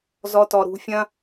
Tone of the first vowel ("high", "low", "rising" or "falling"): high